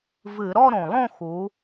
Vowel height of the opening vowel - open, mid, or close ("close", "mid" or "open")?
close